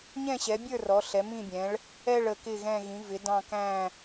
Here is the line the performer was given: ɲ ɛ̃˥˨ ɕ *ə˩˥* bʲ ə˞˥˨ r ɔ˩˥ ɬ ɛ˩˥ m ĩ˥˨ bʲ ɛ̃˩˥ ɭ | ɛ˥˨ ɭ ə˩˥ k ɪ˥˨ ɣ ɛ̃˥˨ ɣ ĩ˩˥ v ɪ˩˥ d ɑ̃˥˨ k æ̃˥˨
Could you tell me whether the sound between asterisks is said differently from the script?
yes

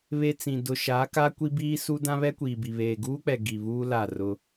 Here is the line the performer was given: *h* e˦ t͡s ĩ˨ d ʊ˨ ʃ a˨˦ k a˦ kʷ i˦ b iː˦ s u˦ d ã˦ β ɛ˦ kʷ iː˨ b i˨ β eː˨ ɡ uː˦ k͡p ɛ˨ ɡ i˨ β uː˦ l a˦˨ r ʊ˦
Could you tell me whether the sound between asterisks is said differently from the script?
yes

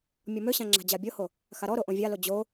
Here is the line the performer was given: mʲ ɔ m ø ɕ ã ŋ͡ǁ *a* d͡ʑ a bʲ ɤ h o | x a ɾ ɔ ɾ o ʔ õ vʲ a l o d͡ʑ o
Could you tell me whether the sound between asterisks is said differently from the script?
yes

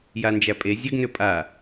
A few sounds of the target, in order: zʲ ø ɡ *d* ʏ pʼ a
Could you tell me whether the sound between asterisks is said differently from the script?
yes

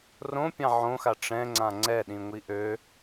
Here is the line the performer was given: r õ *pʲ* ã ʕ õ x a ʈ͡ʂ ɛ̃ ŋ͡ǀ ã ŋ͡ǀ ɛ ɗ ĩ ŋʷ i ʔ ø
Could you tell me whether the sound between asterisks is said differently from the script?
no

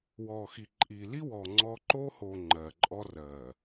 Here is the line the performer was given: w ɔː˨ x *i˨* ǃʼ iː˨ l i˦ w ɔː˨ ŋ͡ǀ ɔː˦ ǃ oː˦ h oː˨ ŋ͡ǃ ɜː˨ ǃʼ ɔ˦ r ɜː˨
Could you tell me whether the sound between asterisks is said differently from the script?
no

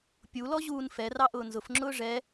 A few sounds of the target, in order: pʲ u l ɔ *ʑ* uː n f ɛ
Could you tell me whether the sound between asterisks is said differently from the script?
no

